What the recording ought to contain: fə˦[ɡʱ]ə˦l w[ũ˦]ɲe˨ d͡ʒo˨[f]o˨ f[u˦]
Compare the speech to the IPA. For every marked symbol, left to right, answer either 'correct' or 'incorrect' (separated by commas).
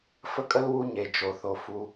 incorrect, incorrect, incorrect, correct